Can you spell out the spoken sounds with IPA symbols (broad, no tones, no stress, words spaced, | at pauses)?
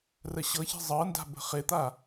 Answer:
rəɕɤçi̤ zˤɤnda̤ bə̤χɪt̪a